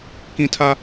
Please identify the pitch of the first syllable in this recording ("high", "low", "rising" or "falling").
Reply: high